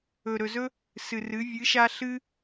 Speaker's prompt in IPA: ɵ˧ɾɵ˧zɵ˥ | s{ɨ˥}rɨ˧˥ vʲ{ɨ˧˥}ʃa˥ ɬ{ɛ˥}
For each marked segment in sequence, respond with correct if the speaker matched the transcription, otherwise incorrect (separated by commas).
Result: incorrect, correct, incorrect